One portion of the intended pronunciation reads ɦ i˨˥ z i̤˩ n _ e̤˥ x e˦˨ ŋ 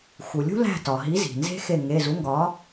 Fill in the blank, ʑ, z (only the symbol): z